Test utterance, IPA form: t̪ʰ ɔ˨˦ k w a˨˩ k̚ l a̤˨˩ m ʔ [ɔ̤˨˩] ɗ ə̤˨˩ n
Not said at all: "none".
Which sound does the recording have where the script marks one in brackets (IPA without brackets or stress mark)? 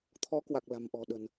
ɔ̤˨˩